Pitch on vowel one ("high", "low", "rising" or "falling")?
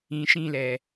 low